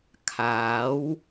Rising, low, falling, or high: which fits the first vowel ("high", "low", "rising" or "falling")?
rising